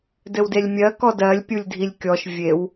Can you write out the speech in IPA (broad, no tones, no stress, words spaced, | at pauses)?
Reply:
dɘwdelʲmʲɜ kɔdɜlʲ pʲulʲdʱilʲkʲɔʃ vʲew